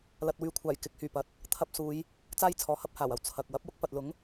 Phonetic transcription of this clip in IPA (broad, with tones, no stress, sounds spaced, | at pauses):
l ɐ˨ t̚ w yː˨ kʷʰ aː˨˩ j k ɪ˨˥ k̚ h yː˨˩ p ɐ˨ t̚ | t̪ʰ ɐ˧ p̚ s uː˨˧ j | t͡s aː˥ j t͡sʰ ɔː˨ h ɐ˥ p̚ h aː˨˩ w ɐ˨ w t͡sʰ ɐ˨ k̚ w ɐ˨˥ p̚ w ʊ˥ k̚ p ɐ˨ t̚ l ʊ˨˥ ŋ